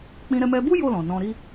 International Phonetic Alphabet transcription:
k͡p ĩ˧ ɾ ɛ˧ m ɛ˧ b u˦ j o˦˨ l ɔ̃˨ n ɔ̃˧ ɾ i˦

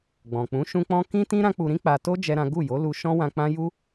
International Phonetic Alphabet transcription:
ɡ͡b ɔ̃˨ k͡p ũ˨˦ ʃ ũ˦ k͡p ɔ̃˦ k ĩ˦ t ĩ˦ ɾ ã˦ k͡p u˧ ɾ ĩ˦ k͡p a˧ t o˦ d͡ʒ ɛ˦ ɾ ã˦ ɡ u˦˨ j o˨˦ l u˧ ʃ ɔ̃˦ w ã˧ k͡p ã˦ j u˦

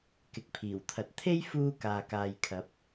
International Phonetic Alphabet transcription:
k ɪ˨ k̚ pʰ iː˨˩ w t̪ʰ ɐ˨ t̚ t̪ʰ e˥ j f uː˧ k aː˨ k aː˨ j kʰ ɐ˨˥ p̚

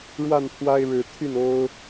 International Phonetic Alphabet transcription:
ɻ w a˥˨ n pʰ w a˦ ɪ̯ ɻ ɻ̩˨˦ t̪ʰ y˥˨ n o˦ ʊ̯

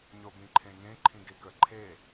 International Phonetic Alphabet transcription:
ɲ o b ĩ ǃʰ ẽ ŋ ẽ ǃʰ ĩ ɡ e k ə ǃʰ e

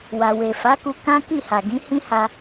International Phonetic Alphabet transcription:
w a˨ w e˨ f a˨˦ k u˧ k ã˦ k i˦˨ h a˨ ɡ ĩ˨˦ h ĩ˦ h a˧

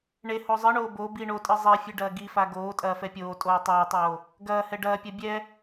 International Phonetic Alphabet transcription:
ɳ e h o zˤ ɨ ɳ oː b o b i ɳ o tʼ ɨ zˤ e fʲ ɨ ɖ ɐː ɡ i f a ɡ oː tʼ ɐː f ɛ pʲ oː tʼ oː tˤ ɐː tˤ oː | ɡ ɐː h ɛ ɖ ɐː pʲ ɐ bʲ ɛ

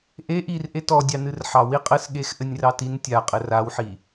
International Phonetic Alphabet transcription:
ʔ e ʔ i r ʔ e t ɔ dʲ ɑ n ɨ r ħ ɑ w i qʼ ɘ s ɠ e x ʔ ɘ nʲ r ɑ t i n tʲ a qʼ ɘ r a w ħ i

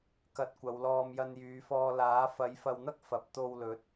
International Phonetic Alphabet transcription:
k ɐ˨˥ t̚ kʷ ɐ˨˧ w l ɔː˧ m j ɐ˧ n j yː˨˧ f ɔː˧ l aː˨˥ f ɐ˨˥ j f ɐ˧ w n̪ ɐ˥ k̚ f ɐ˨ p̚ t̪ o˧ w l ɵ˨˥ t̚

